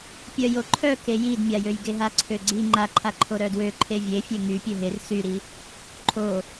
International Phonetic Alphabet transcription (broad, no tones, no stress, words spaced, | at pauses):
pʲœjoǃʰœ kejidmʲajøj ɡeɦaǀʰøɡ͡ǀi ŋ͡ǃaǃʰaǃʰo ɾœdwø ǃʰevʲefʲe ŋy pʲøɦer syɾi | ǃʰo